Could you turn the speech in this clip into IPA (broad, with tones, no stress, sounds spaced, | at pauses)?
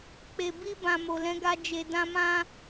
k͡p e˨ b i˧ b ã˨ m o˨ l ɛ̃˨˦ ɡ a˧ d͡ʒ e˧ d ã˦ m ã˦